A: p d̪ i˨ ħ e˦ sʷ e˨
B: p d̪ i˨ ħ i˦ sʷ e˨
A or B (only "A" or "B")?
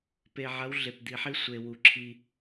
B